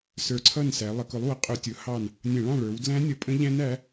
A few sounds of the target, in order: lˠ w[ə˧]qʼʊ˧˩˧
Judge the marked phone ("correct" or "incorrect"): incorrect